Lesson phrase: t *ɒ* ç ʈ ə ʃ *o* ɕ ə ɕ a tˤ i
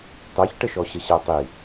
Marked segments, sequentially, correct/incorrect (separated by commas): incorrect, incorrect